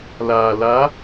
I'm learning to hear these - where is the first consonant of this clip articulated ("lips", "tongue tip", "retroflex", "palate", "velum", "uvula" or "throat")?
tongue tip